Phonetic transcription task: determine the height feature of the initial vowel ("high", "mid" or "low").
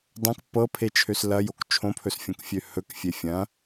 low